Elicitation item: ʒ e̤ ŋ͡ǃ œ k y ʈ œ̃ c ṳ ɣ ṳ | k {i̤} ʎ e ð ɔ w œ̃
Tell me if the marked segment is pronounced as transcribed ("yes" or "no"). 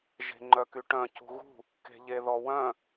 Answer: no